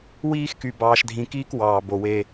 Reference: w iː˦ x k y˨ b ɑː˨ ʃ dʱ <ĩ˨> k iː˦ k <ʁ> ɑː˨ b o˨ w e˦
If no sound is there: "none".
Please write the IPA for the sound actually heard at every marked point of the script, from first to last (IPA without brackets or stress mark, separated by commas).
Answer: ĩ˨, w